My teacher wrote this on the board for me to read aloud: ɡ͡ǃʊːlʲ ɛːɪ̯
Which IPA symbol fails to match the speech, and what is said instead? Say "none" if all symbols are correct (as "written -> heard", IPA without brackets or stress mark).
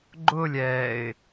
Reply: none